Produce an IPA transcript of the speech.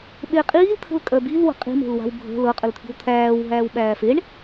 ɓ e qʼ iː l t̪ʰ ə̤ l kʼ œ b i l w ə̤ qʼ i̤ m e̤ l w a̤ w bʱ ə̤ l ɤ qʼ ə l t̪ʰ i̤ w t̪ʰ æː w ɦ æː w ɓ æː f e ɳ

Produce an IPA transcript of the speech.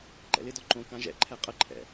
ǃ ɛ̰ l ɪ d ɔ ǃ õ k ã ʒ ɛ̰ ǃʰ ɛ qʼ ə ǃʰ ɛ̰

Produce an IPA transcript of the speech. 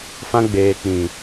f ã˧ ɡ͡b eː˨ k͡p ĩ˨

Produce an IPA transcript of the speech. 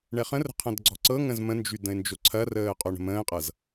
ɳ ɛ χ ə̃ r ə̤ qʰ ɐ̃ d ɡ͡ǀ ɔ̤ ǀ ɤ ŋ ə̃ z m ə̃ n d͡ʒ y d ə̃ ɪ̯ n d͡ʒ o ǀʰ ɐ r əː qʼ o ɳ ə̤ m ə̃ː qʼ ɤ z

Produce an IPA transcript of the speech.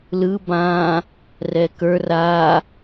l ɯ b ã | r ɛ k ə˞ r a

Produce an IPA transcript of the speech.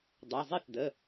dˤ ø˩˧˩ zˤ i˥˩ θ d ə˩˧˩

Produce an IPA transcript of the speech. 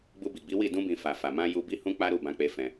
ɡ͡b u˧ b i˨ ɡ͡b i˨˦ w i˦˨ d ũ˧ b ĩ˨ f a˨ f a˨ m ã˧ j u˧ b i˦ h ũ˦ k͡p a˦ ɾ u˦˨ b ã˧ k͡p e˧ f ɛ̃˧

